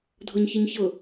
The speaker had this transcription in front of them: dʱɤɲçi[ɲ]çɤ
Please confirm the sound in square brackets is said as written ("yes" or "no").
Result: yes